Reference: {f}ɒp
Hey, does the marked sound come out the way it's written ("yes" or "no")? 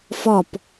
yes